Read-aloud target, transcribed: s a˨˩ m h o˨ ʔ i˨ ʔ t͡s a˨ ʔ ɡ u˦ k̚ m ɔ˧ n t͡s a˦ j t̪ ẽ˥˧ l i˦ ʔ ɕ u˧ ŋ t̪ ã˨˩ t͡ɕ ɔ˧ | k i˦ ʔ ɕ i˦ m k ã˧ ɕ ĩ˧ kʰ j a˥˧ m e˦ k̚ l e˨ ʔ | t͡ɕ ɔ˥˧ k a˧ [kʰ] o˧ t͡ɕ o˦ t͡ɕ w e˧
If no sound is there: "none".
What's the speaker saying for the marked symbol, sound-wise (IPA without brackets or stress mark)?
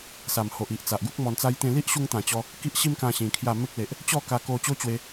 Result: k